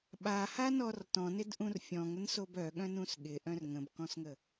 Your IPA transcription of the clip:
ɓ a h a n ɔ r t ɔ̃ n ɪ d ʔ ũ r fʲ ɔ̃ ŋ ə n s o b œ ɠ œ̃ n ũ s ɠ ɪ ʔ œ̃ r ŋ ə̃ b k ɔ̃ s ŋ ə

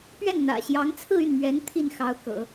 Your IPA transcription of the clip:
p ɥ ɛ˥˩ n n̪ ä̰˨˩ ɕ j ɑ˧˥ ŋ t͡sʰ ɹ̩˥˧ y˥˩ n m ɥ ɛ˧˥ n t̪ʰ i˥˩ n x ɑ˧˥ ʊ̯ k ɤ̰˨˩˦

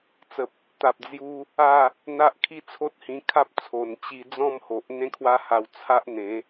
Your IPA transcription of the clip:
t͡s ə˨ p̚ | t̪ a˨ p̚ d͡z j u˧ | a˥˧ | n̪ a˦ ʔ kʰ i˥˧ t͡sʰ o˦ t̚ h ĩ˧ kʰ a˦ p̚ t͡sʰ o˨˩ n t͡ɕ i˧ d͡z ɔ̃˥˧ m h o˨ ʔ n̪ ẽ˦ kʰ w a˦ h a˧ w t͡sʰ a˦ ʔ n̪ ẽ˨˦

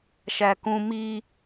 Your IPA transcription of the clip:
ʃ æ k ũ m i

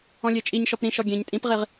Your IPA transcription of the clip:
ɔ̃ lʲ e t͡ʃʼ i ɲ ʃ ɔ p ɾ ĩ ʃ ɔ ɡʲ ẽ ɲ tʼ ĩ p ʁ i ʁ

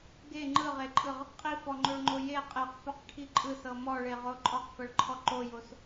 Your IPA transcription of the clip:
ɡ e ŋ͡ǃ ɯ ʁ e ǃʼ ɯ ʁ | qʼ i f ɔ ŋ͡ǃ o ɭ ŋ͡ǃ o j e qʼ e q f o q ʈʰ i ǃʼ ɯ s ɤ m ɔ ɭ e ʁ o ǃʼ ɔ q f ɤ ɭ ǃʰ ɔ ǃ o j o s

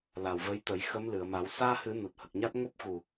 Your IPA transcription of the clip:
l a˨˩ w v ə˧˥ j t̪ ə˨˩˦ j x ə˧˥ m l ɨ˨˩˨ ə̯ m a˨˩˦ w s aː˧ h ɨ˨˩˦ n u˨˩ t̚ h ə˨˩ k̚ ɲ a˦˥ t̚ ŋ o˦˥ p̚ x u˨˩

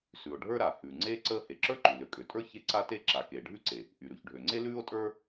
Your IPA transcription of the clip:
s ʉ˩ o̯ ɖʱ ə˞˥ ɾ a˩ h ʉː˩ ŋ͡ǀ eː˥ ǀ əː˥ h e˩ ǁ ə˞˥ ǃ ʉ˩ l ø˩ kʼ ø˩ tʼ ə˞˥ ç e˥ ǀ a˥ t e˥ ǁ a˩ k eː˩ ɖʱ ʉ˥ ǀ e˩ | ʔ y˩ ɾ ʉ˩ ç ɖʱ ø˩ ŋ͡ǀ e˥ l ʉː˥ o̯ tʼ ə˞˥

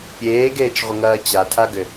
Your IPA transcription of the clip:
pʲ eː ɡ eː t͡ʃ ʁʷ ə ŋ ɐː t͡ɕ a tʰ a ɡ ʏ

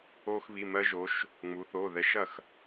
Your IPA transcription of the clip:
o˧ x β i˩˧˩ m ɜ˧ ʒ o˩˧ ʃ | ŋ͡m u˩˧ θ o˩˧˩ ð ɛ˧ ʃ ɐ˥˩ x

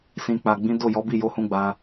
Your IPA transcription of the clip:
s ĩ˨ k͡p a˨ ɡ͡b ĩ˨˦ d o˦˨ j ɔ˨˦ b i˦˨ j o˧ h ũ˧ ɡ͡b a˧

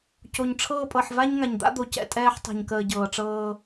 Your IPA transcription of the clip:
c o˨ ɲ ʈ͡ʂʰ ɤː˦ pʼ ɤ˨ ħ v a˦ ɲ ŋ a˨ ɲ d̪ a̰˦ d̪ o˨ c ɛ̰˨ tʼ ɛː˦ ħ tˤ a̤˨ ɲ k əː˨ ɟ ɤː˨ ʈ͡ʂ ɤː˦

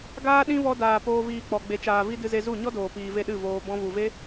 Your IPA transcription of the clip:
ɡ aː˧ ɗ ĩ˧ v ɔ˧ d aː˨ p oː˧ v iː˧ k͡p ɔ˨ ɡ͡b e˨ t͡ʃ aː˨ v i˧ d ɨ˧ z e˧ z u˦˨ ɲ ɔ˦ d oː˨ p iː˨ v e˧ ɗ ɨ˦˨ v oː˧ b ɔ̃˧ v u˨ v e˦

